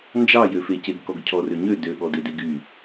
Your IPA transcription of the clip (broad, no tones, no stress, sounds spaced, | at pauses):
n d͡ʒ ɑ j ø f e c e ɡ k ɔ ɡ cʰ ɔ r ø ɲ ø d ø ɠ ɔ d e d e ɡ y